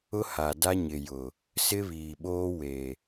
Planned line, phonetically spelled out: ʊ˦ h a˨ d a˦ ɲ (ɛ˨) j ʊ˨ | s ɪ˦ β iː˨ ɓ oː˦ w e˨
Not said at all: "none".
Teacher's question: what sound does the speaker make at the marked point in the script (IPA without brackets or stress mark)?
ɪ˨